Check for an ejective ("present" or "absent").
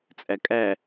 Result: present